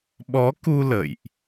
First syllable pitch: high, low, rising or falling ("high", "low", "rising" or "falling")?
rising